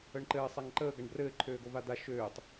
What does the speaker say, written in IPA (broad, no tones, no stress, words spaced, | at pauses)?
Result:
əɳǃɘː sˤaŋǃəː ɡaɳbrɘː ǃʰøːɡovad̪a ʃøːtˤ